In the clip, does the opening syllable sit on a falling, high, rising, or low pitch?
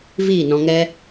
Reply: falling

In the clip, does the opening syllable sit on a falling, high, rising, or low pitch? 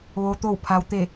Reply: low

